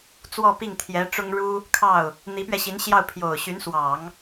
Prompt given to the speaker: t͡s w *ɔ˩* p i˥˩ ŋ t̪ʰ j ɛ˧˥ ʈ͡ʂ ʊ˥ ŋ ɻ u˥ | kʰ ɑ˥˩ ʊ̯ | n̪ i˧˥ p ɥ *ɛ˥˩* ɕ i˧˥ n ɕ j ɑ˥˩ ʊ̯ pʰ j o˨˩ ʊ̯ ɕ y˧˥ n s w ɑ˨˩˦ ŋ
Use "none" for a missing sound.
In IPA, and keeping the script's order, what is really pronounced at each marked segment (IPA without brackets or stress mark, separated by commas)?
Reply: ɔ˥˧, ɛ˧